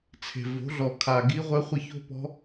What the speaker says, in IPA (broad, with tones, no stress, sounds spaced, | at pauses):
t͡sʰ e̤˨˩ v o̤˩˥ ɮ ɔ˨˩ kʰ a˨˩ ɡ i˧˥ ʁʷ ɛ˧˥ χʷ ɘ˦˨ ç o̤˥ p ɔ̤˧˥